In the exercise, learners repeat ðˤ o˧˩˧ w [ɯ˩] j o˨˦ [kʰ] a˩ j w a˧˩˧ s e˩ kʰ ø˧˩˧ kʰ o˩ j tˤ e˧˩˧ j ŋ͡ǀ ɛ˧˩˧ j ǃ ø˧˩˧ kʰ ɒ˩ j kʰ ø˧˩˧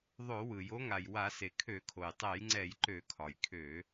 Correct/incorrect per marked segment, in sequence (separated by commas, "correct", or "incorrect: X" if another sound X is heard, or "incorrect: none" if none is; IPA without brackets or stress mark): correct, incorrect: ŋ